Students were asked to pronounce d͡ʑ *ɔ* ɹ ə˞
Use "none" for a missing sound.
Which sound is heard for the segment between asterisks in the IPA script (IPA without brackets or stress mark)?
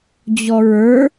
ɔ